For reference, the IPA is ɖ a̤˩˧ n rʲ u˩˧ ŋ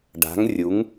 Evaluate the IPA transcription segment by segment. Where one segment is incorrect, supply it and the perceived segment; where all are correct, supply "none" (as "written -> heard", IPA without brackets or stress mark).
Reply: n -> ŋ